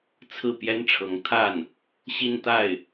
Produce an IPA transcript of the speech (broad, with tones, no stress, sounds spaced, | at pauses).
t͡sʰ ɹ̩˥˩ p j ɛ˥ n ʈ͡ʂʰ ɤ˧˥ ŋ t̪ʰ a˥˩ n | ɕ i˥˧ n t̪ a˥˩ ɪ̯